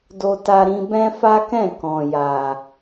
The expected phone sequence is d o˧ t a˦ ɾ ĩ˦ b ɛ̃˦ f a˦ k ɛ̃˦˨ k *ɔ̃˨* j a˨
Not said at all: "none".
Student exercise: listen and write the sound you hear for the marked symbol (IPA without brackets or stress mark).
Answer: ɔ̃˨